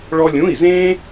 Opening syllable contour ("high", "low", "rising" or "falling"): high